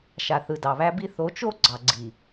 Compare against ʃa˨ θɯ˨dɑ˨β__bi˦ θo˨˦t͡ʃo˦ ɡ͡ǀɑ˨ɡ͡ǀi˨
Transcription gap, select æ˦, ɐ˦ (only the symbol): æ˦